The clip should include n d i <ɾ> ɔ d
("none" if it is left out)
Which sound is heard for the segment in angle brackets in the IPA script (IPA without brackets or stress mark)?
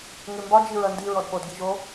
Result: ɹ